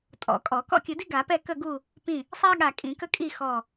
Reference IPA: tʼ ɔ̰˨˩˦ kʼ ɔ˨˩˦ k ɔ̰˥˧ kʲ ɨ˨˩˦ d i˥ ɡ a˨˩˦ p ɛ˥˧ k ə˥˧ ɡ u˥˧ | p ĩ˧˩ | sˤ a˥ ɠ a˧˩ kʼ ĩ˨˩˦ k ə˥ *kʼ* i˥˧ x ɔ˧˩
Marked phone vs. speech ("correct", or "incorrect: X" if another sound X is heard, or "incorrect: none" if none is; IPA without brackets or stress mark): correct